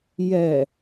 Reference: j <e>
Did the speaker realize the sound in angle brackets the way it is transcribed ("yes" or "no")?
no